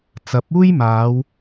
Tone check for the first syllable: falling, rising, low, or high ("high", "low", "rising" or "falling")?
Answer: rising